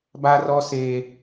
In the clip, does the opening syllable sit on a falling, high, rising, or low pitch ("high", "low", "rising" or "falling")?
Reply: high